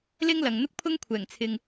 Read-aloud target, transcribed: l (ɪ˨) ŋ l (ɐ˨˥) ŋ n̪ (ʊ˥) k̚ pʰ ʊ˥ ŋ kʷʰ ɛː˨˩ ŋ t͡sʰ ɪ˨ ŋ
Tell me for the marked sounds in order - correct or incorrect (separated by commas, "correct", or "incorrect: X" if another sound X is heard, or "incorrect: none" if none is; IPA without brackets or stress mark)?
incorrect: ɪ˥, incorrect: ɐ˨, correct